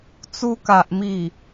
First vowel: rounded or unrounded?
rounded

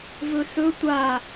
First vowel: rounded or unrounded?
rounded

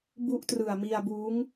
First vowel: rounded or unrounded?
rounded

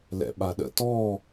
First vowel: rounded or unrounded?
unrounded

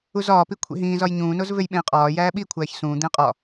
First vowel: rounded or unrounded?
rounded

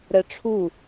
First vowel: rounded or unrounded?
unrounded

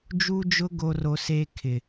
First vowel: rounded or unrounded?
rounded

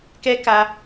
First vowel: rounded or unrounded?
unrounded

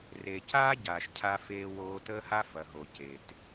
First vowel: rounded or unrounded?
unrounded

